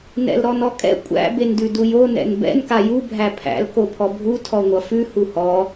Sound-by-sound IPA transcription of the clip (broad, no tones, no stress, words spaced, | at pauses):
nɛ̰lɾɔnɔkʼɛ̰ kʷʼæ̰ bendʉdujo nɛ̰nbɛ̰n kaju bʱæpʰæ̰l kopʰɔbʱu tʰɔŋʷʌfʉ huhɔ